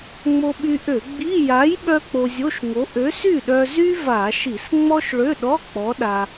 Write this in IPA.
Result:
ŋ͡m o˧ ɓ y˧ ʔ ø˧˩˧ ɡ͡b i˧˥˧ j a˨˥ j ɓ œ˥ k͡p o˧ zʲ o˧˥˧ ʃ ŋ o˨˥ ʔ ø˨˥ s y˥˩ ɗ œ˧ z y˥ v a˧˩˧ ʃ i˧˩˧ s ŋ͡m ɔ˥ ʃ ɭ ø˧˥˧ ɗ ɔ˧˥˧ k͡p ɔ˨˥ ɗ a˧

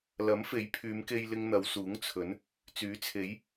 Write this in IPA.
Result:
l ɐ˨˥ m f e˨˥ j pʰ yː˨˧ m k e˧ j l ɪ˧ ŋ n̪ ɐ˨˧ w s uː˨˥ ŋ t͡sʰ ɵ˨˥ n | t͡s yː˨˥ t͡sʰ e˨˥ j

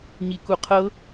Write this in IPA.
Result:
ɲ i k u qʰ ɤ

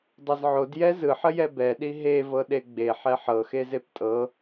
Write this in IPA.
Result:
dˤ ɛ z ʕ o d j ɛ z ɯ ħ ə j ɛ b ɛ ɗ i ɦ e v ɤ ɗ e ɡ͡b e ħ ɛ ħ ɤ x e z e p tʼ ɤ

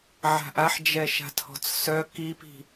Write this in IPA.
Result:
ʕ a̤ ʔ a ħ d͡ʒ ɛ ʃ a̤ tʰ ɔ̤ t͡s s œ k i p i̤

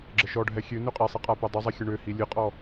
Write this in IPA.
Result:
ɡ͡ǁ ə ʃ ɔ ɖʱ ɛ xʲ ø n ø qʼ ɛ sˤ i qʼ a p ɛ dˤ ʊ zˤ i xʲ ə ɳ ø h i lʲ ɨ qʼ ɔ

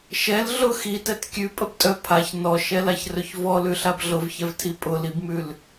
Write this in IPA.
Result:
ʃ ɛ l ɮ ʊ x i t ɛ t kʲ ʉ pʼ ə b tʼ œ pʰ a ç n ɔ ʃ ɛ l a ç r ɵ ç v ɔ l ʉ ɬ a b ɮ ʊ v ç ɛ v tʰ i pʼ ʊ l i b m ʉ l

